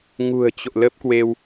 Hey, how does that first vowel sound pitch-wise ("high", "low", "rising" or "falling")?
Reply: low